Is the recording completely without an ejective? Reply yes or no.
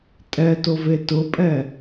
no